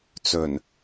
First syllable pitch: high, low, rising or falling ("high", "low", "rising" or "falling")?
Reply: low